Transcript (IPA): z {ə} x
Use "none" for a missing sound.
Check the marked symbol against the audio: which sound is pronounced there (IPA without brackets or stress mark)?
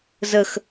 ə